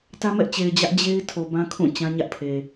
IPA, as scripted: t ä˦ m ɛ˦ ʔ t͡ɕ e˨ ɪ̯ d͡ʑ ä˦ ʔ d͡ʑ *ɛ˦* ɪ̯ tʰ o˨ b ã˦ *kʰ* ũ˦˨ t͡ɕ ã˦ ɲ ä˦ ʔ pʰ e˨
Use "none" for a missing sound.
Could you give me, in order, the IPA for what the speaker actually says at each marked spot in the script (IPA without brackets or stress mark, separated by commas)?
e˦, kʰ